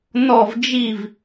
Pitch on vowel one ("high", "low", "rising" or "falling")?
falling